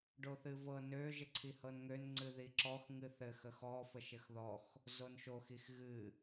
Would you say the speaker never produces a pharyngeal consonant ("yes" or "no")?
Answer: yes